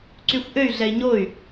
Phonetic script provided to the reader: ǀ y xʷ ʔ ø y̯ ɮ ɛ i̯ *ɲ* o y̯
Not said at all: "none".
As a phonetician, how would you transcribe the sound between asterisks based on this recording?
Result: ɲ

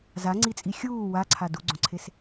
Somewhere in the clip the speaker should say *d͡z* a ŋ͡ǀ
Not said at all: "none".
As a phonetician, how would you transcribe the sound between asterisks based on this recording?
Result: z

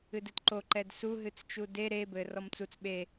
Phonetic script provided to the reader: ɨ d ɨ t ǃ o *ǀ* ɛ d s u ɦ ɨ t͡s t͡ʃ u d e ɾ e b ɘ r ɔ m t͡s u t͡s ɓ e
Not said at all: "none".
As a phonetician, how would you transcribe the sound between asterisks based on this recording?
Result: ǃ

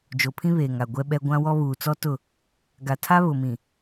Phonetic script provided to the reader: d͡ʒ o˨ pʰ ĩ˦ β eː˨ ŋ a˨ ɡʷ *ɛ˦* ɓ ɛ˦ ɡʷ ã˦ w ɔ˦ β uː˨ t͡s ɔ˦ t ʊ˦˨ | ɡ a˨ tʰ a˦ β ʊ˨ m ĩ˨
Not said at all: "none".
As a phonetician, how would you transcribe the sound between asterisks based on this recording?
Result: ɛ˦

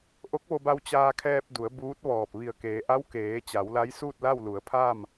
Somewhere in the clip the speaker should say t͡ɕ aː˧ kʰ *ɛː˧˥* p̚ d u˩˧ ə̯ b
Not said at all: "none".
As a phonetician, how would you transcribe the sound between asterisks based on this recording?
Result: ɛː˧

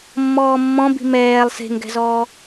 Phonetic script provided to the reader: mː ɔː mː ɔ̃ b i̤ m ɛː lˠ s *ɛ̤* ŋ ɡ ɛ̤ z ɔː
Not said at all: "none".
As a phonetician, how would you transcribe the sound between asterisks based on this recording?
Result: e̤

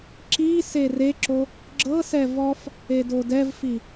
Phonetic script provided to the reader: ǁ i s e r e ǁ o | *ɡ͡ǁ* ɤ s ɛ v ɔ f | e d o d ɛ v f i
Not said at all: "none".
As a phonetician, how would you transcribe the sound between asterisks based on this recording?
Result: ɡ͡ǁ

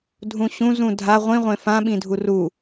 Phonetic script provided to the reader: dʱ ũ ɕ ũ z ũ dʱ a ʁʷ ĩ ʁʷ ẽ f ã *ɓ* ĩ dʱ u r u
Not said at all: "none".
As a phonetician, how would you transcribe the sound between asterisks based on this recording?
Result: ɓ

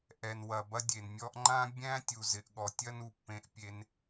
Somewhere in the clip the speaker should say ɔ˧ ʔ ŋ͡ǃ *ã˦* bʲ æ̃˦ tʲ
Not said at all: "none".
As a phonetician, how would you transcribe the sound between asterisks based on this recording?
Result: ã˦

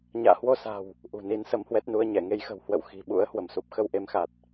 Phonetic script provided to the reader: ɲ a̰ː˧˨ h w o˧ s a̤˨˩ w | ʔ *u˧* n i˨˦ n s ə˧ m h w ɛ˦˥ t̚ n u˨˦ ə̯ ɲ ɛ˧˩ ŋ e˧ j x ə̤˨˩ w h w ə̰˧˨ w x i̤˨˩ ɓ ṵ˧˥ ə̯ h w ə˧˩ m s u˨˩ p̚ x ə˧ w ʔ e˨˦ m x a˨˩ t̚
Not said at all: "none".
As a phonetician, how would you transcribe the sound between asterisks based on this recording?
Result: ṳ˨˩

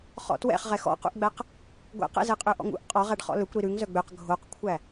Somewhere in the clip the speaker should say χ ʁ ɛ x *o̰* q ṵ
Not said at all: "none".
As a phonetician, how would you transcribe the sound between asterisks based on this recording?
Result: ɔ̰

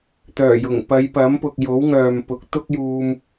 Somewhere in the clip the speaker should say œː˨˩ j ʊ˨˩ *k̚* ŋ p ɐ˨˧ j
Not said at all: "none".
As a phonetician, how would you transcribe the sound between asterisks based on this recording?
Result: none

